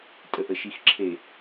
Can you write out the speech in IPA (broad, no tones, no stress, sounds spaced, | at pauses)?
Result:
tʼ ə ʔ ə ʃ i x ǁʰ e